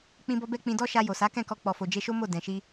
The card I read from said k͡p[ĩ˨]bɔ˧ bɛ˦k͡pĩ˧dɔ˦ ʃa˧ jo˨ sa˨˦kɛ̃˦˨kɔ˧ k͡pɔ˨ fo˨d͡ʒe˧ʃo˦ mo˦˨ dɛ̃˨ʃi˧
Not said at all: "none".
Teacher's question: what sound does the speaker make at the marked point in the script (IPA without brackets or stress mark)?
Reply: ĩ˧